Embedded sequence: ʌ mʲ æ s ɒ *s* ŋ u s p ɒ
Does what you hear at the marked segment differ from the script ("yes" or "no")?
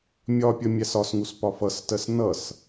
no